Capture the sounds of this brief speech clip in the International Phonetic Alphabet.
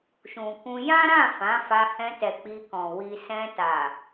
ʃ ũ˨ k ũ˧ j ã˦ ɾ ã˦˨ f ã˨˦ f a˧ h ɛ̃˧ t ɛ˨ k͡p i˧ k ɔ̃˨ w i˨ s ɛ̃˧ t a˨

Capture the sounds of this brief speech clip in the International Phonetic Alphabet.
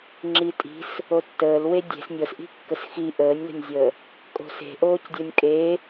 ŋ͡ǁ i tʼ i̤ s | o tː əː l w e dʲ e̤ s nʲ ɤ s ʔ i̤ kː ə s x i ʔ əː nʲ l ə̤ nʲ zʲ əː | kʼ o̤ s e̤ ʔ oː c dʲ o nʲ kʼ e

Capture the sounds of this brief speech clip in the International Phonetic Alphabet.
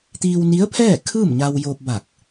t̪ iː˧ w n i˧˥ ə̯ pʰ ɛː˥˨ kʰ ɯː˥˨ m ɲ a˧ w j oː˧ p̚ b a˧˩ k̚

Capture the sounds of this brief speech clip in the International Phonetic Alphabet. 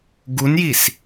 ɡ u n j i s

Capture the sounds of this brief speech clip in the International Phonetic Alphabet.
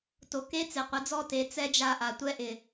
t o˨ k e˦ t͡s e˨ qʷ i˨˦ d͡z ɔ˦˨ t e˨˦ t͡s ɛ˦ d͡ʒ a˦˨ ʔ a˨ tʷ ɛ˦ ʔ ɪ˨

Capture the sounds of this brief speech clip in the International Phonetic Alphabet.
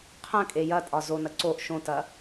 qʰ ɐ̃ kʼ e j ɐ tʼ ɒ z o n ɐ ǀ o ʔ ʃ õ t ɐ

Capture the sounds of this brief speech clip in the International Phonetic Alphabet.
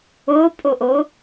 o pʼ o ʔ o

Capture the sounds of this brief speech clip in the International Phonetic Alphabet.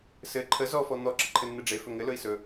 s ɘ ǃʰ ə z ɔ f ɔ n̪ ɔ ǁ ə ǃʰ ɘ nː ɘ ɖ͡ʐ e f ɵ ŋ ɘ l ɵ i̯ s ɵ

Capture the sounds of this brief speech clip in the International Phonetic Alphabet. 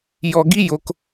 j ɔ˨ ɡ i˦ j o˧ k

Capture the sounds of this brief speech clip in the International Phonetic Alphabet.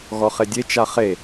ɣ ɔ χ e dʲ e t͡ʃ a χ e

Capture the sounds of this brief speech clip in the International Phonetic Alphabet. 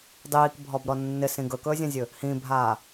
dˤ iː k bʱ ɔ b ɾ ɔ nː ɪ s ĩ ɡ ɵ k ɵː zʲ ã zʲ ɵ | h ĩ bʱ aː

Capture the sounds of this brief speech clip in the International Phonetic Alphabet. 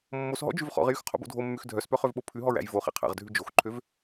mː o s ɦ ɔ̰ d͡ʒ ʉ v χ ɔ̰ ʁ j y x qʰ o̰ b o̰ dʱ o mː ʉ x dʱ œ s p œ χ ø v ɓ o pʰ ʉ ɦ ɔ ɹ æ̰ j v o χ ḛ qʰ æ̰ ʁ dʱ ʉ d͡ʒ o x ǃʰ ø v

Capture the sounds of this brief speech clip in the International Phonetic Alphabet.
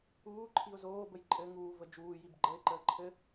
uː ǃʰ i ʊ̯ z oː b ə j ǃʼ ɘ ŋ uː v ə d͡ʒ uː j i b ɡ͡ǃ ə ɪ̯ ǃ əː ǃʰ ɘ

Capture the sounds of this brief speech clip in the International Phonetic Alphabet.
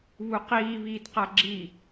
β u q iː β iː t q a ɡ͡ǁ i

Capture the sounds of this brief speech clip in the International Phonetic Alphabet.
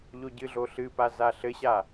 ʎ o ɟ ɨ ɮ o ɬ ɨ p a z a ɬ ɘ ɕ a

